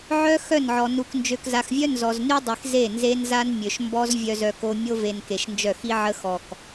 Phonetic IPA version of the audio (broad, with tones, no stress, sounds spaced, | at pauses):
ʕ œ˦ x œ˦˨ n ʕ ɔ˨ n u˨ k n d͡ʒ ø˨ k z a˨ x vʲ œ˦ n z ɔ˨ z n y˦ dˤ i˨ x z e˦˨ n z e˦ n z a˦ n mʲ ø˨ ʃ m b ɔ˦ z vʲ œ˨ z œ˨ k o˨ mʲ o˦ v e˨ n k e˨ ʃ n d͡ʒ œ˦˨ x i˦ ʕ ə˦ x ɔ˨ k